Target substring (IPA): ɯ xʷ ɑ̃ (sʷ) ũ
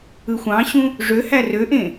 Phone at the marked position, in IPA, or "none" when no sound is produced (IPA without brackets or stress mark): ɕ